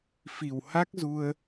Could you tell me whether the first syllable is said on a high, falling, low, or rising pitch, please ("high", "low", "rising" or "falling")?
low